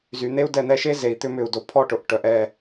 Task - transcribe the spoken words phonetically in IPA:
z y˨ n̪ e˦ u̯ d ɛ˧ n̪ ɛ˧ ʃ e˦ z e˨ i̯ t̪ ʏ˦ m ʏ˦˨ u̯ d o˧ pʰ ɔ˦ ʈ ʊ˨ ʔ ʈ œ˨ ʔ ɛ˦˨

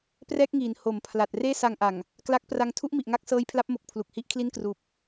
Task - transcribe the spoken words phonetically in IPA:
p r ɛː˥˩ k̚ ŋ iː˩˦ n h o˩˦ m pʰ l a˨˩ t̚ r eː˥˩ s a˧ ŋ ʔ a˨˩ ŋ | k l a˦˥ k̚ p r a˧ ŋ tʰ u˥˩ ʔ m i˨˩ ʔ ŋ a˦˥ k̚ s ɤː˦˥ j pʰ l a˦˥ p̚ m o˨˩ k̚ pʰ l u˨˩ k̚ h i˦˥ ʔ kʰ l i˥˩ n k r uː˨˩ p̚

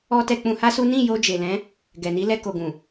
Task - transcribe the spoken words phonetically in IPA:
ɔ˦ t ɛ˧ k͡p ũ˧ h a˦ s u˦ n ĩ˦˨ j o˧ d͡ʒ e˨ l ɛ̃˨˦ | ɡ ɛ˨ n i˨˦ l ɛ˧ k o˨ ɡ ũ˨

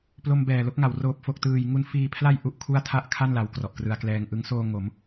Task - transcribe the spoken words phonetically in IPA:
p l o˧ m b ɛː˨˩ l o˦˥ k̚ ŋ a˩˦ w r oː˨˩ p̚ f o˨˩ k̚ t ɯː˨˩ j ŋ u˦˥ n f iː˧ pʰ l a˥˩ j ʔ u˥˩ ʔ kʰ u˥˩ a̯ tʰ a˥˩ ʔ kʰ a˥˩ n l a˧ w k r ɔ˨˩ ʔ k r ɯ˧ a̯ k l ɛː˧ ŋ ʔ ɯ˦˥ ŋ s oː˧ ŋ o˩˦ m

